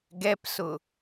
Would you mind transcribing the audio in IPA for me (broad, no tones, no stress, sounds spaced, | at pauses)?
ɡ ɛ p s ʊ